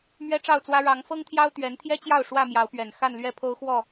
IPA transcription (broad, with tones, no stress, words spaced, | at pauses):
mɥɛ˦ʈ͡ʂɑ˥˨ʊ̯t͡swä˦ ɻɑ˨˦ŋfɤ˦ŋt̪ʰjɑ˦ʊ̯ t̪ɥɛ˨˦nt̪ʰjɛ˦t͡ɕjɑ˥˨ʊ̯ ʂwä˥˨mjɑ˨˦ʊ̯pɥɛ˨˩n xa˥˨nlɥɛ˥˨pʰo˦ʊ̯xwɔ˥˨